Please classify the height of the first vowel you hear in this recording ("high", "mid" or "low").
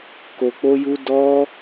mid